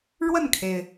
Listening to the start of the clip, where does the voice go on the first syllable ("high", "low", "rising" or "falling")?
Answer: falling